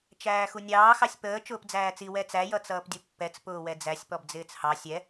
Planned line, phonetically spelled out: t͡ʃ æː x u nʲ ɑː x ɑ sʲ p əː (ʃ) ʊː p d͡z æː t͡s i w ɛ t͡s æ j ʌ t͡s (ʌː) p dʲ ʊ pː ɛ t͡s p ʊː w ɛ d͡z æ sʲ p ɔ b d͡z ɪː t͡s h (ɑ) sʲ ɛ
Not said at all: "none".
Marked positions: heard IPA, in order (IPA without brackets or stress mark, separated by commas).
t͡ʃ, ʌː, ɑ